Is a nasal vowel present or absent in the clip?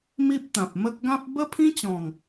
present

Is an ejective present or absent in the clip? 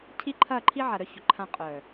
present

